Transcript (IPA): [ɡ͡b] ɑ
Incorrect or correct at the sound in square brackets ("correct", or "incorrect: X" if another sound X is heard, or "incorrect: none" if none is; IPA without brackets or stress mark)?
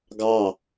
incorrect: ɡ